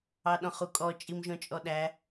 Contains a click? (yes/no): no